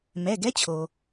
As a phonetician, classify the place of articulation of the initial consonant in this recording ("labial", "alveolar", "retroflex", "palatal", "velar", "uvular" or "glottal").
labial